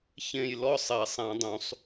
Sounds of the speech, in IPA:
ç ẽ˥˨ j l ɔ˥ sˤ ɛ˨˩˦ sˤ ã˨˩˦ dˤ ũ˨˩˦ sˤ

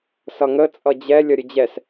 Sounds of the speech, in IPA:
s ʌ ŋ ə t͡sʼ ʌ d͡ʑ ɛ lʲ ʌ ɾʲ ə d͡ʑ ɛ s

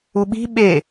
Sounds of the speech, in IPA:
u ɓ i̤ ɓ e

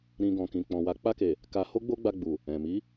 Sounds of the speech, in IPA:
ɾ ĩ˧ ɡ ɔ̃˨ k ĩ˨ k͡p ɔ̃˨ w a˨˦ k͡p a˧ k e˨ | k a˧ h o˦ ɡ͡b o˦ ɡ͡b a˧ ɡ͡b u˨ | ɛ̃˨ m i˨˦

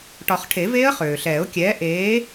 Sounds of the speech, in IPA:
ʈ ɒ˨˩˦ χ ʈʰ e˨˩˦ v eː˦˥ ə̯ χ øː˩ ɬ ɛː˨˩˦ ʊ̯ kʲ ɛː˨˥ ʔ eː˨˥

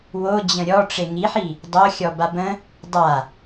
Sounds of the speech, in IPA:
w o d͡ʑ ə̃ ɾʲ ɔ ʈ͡ʂ e ŋ i ħ i | dˤ o xʲ ɔ b a b ə̃ | dˤ a

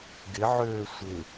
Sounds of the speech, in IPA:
ɡ ɪ ʕ øː sʷ ɪ

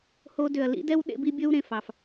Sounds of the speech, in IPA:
h o˧ d ʏ˨ ɐ̯ l ḭ˦ d ɛ˦ w ɗ ḛ˧ b i˧ bʲ ɵ˦ w ɾ ẽ˨ f ɑ˨ f

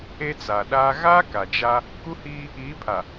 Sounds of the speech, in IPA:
e˦ t͡s a˨ ɗ aː˦ ɣ a˦ k a˨ d͡ʒ a˦ | k u˦ h iː˦ | i˨˦ pʰ a˨

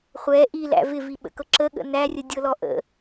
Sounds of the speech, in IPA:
χʷ ɛ ʔ i l æ̰ v ɪ v i ɓ ə̰ k ɤ ǁ ə ɠ ə̰ n æ rʲ ə dʲ ɤ l ɔ ʔ ə̰

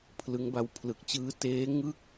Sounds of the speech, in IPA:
pʰ l ɯ˦˥ ŋ b a˦˥ w pʰ l ɯ˨˩ k̚ t͡ɕ ɯː˦˥ t eː˦˥ ŋ ɯ˥˩ k̚

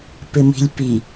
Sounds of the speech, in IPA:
p ɪ m i̤ lʲ p i

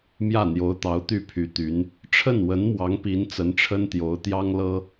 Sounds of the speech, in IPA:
m j ä˥˩ n̪ j o˧˥ ʊ̯ t̪ ɑ˧˥ ʊ̯ t̪ y˥˩ pʰ y˧˥ t̪ y˧˥ n | ʈ͡ʂʰ ə˥˩ n w ə˧˥ n m w ɑ˧˥ ŋ p i˧˥ n t͡s ə˧˥ n ʈ͡ʂʰ ə˥ n t̪ j o˧˥ ʊ̯ t̪ j ɑ˥ ŋ l ɤ˥

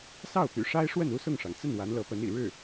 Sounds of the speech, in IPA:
s ɑ˥˩ ʊ̯ p y̰˨˩ ʂ a˥ ɪ̯ ʂ w ə˥˩ n u˥ s ʊ˥˩ ŋ ʂ ɑ˩ ŋ t͡s ə˥˩ n w a˧˥ n l ɤ˧˥ p ə˧˥ n ḭ˨˩ ɻ ɻ̩˥˩

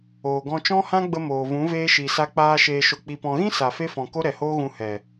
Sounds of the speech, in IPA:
oː˨ ɡ ɔ̃˧ t͡ʃ ɔ̃˦ h ã˦ ɡ͡b ə˧ m oː˨ v ũ˨˦ v eː˧ ʃ i˨ s a˧ k͡p aː˧ ʃ eː˨ ʃ o˨ k͡p i˨ p ɔ̃˨ ɣ ĩ˦ s a˨ f e˧ f ɔ̃˨ k o˦ ɾ ɛ˨ h oː˦ ɣ ũ˧ h ɛ˨

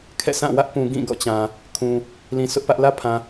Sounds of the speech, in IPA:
kʰ ɛ̰˦˨ sʰ ã˦˨ w ä˦ ʔ p ũ˨ ɡ ĩ˦˨ ɡ ɔ̰˦˨ t͡ɕ ã˨ | kʰ ũ˨ | l ĩ˨ s ʊ˦ ʔ p ä˦ ʔ l ä˦ pʰ ã˨

